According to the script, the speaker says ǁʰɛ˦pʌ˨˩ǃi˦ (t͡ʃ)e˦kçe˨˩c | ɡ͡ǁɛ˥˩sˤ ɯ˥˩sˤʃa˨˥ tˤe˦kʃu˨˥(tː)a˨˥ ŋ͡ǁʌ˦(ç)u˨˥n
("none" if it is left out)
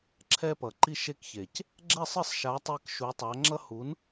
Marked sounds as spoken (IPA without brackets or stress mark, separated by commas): ʃ, tˤ, h